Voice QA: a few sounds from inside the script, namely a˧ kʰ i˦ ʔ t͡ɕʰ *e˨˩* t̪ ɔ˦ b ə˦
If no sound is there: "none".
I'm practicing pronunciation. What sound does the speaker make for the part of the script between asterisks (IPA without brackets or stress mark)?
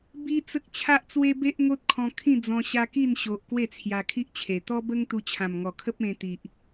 e˨˩